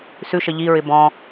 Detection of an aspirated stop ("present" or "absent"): absent